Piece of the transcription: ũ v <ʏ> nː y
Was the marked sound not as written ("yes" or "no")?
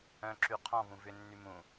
no